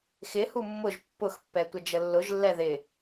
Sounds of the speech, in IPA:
xɪhu mːʊʒ pːʊxpːɛ tʷəd͡ʒəlːʊʒlːɛ ðɪ

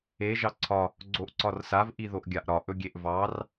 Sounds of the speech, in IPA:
e ʒɑǀʰɒ | ɡ͡ǀoʔǀɒrsav ʔiðoʔɡʲaʔɾɒ ʔɵɡʲeʔvɑr

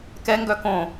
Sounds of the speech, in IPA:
kɛŋɡœ kõ

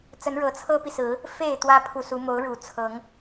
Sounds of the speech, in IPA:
t͡sə˨˦n ɻɤ˨˦t͡sʰɤ˦pi˨sɹ̩˨˦ | fe˥˨ɪ̯ t̪wä˦pʰu˨su˨˦ mo˨˦ʊ̯ɻu˨˩t͡sʰɤ˨˦ŋ

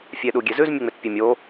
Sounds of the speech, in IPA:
fʲeɗuɡʲezʉz mʲuŋ͡metpʲemʲo

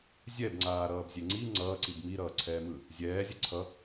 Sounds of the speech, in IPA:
zʲɛbŋ͡ǀaːɾʌːbzʲe ŋ͡ǀi ŋ͡ǀʌːǀib miɾʌːǀʰɛːmɯː | zʲɛːzʲɛ ǀʰʌ

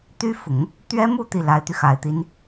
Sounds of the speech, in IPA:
t̪y˥fʊ˨˩˦ŋ | t̪ɥɛ˥mu˥˧ t̪i˥˩la˧˥ɪ̯t̪y˧ xa˨˩ɪ̯t̪i˧˥n

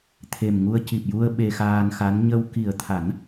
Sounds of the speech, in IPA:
t̪ʰe˨˩mŋu˧ə̯ ci˨˩p̚ju˧ə̯ ɓe˧xaː˧nxa˧˥n ɲə˧w ki˨˩ə̯t̪ʰa˨˩˦n

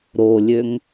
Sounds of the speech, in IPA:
ɾolʲøŋ

